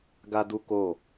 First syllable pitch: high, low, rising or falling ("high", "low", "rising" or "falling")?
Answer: high